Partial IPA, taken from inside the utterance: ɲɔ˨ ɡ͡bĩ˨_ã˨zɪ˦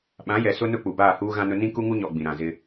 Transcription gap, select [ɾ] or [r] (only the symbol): ɾ